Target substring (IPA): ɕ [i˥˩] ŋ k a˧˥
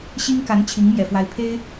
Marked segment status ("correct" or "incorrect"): incorrect